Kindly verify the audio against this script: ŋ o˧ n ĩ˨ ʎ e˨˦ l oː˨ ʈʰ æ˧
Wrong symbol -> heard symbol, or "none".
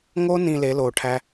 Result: ʎ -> l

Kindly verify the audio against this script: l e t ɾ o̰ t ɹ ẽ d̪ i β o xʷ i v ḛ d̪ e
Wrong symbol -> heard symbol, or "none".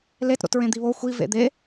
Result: none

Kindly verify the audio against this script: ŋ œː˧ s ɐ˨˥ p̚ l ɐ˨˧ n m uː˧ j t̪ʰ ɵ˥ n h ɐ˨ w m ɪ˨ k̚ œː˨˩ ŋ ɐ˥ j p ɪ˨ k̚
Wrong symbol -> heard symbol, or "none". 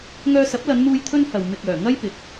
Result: none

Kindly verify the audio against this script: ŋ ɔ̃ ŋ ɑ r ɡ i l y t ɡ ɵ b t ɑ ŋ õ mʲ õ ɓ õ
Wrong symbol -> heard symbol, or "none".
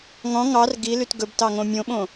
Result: none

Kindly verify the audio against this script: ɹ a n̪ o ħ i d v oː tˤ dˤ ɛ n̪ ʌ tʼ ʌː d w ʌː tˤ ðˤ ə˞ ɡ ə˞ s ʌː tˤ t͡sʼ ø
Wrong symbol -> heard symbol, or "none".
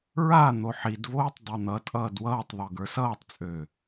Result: none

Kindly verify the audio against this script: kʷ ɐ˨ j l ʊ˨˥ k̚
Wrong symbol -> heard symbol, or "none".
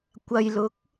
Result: none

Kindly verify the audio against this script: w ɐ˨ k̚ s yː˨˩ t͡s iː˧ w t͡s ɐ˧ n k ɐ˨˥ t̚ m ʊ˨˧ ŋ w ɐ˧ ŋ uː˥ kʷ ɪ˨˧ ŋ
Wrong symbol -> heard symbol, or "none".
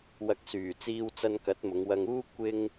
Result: ɪ˨˧ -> ɪ˥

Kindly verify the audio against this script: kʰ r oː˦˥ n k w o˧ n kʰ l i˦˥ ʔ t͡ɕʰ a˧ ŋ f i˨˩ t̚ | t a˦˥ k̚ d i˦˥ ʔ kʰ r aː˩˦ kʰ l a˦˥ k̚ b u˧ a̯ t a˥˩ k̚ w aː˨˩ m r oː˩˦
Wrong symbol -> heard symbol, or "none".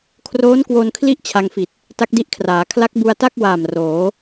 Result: none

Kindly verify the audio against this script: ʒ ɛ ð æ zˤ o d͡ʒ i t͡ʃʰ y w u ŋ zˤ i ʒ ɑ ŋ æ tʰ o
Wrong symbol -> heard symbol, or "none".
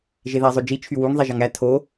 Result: ɛ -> e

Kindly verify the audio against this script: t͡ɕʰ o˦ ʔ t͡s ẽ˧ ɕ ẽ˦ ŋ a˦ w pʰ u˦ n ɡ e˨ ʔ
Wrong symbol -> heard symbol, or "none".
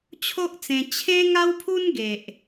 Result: ɕ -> t͡ɕʰ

